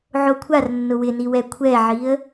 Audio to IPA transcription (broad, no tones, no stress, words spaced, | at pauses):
ʕokʷʰar nːʊwɪniwɛ kʷʰɛʕiə̯